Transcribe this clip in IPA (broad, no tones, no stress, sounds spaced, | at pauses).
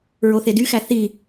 ɹ o θ e d y x æ θ i